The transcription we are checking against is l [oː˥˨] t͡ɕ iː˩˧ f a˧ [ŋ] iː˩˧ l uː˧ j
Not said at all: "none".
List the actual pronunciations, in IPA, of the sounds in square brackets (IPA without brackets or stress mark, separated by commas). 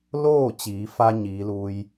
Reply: oː˥˨, ɲ